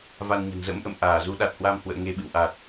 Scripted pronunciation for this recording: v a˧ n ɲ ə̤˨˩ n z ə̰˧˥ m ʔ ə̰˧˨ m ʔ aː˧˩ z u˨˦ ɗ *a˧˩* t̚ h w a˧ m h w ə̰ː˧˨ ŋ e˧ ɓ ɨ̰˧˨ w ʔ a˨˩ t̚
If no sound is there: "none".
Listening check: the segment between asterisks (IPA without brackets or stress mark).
a˨˩